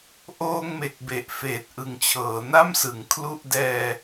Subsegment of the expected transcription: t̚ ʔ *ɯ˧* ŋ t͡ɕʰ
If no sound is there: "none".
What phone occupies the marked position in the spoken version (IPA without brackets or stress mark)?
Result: ɯ˨˩